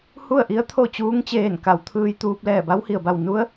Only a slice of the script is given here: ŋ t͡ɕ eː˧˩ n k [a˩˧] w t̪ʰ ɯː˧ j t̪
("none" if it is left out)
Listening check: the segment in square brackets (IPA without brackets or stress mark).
a˩˧